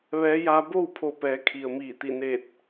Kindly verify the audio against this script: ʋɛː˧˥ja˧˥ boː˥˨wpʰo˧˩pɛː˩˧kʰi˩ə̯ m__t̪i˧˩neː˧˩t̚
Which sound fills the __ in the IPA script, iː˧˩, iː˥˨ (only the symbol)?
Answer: iː˧˩